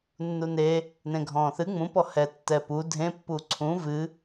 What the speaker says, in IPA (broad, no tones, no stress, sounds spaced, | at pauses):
nː u n e | n ẽ ɡʱ ɔ̃ː θ ɨ ŋ͡m ũ p ɔ h ɛ tː ɛ p u dʱ ẽ pː u ǀʰ ũ v ɨ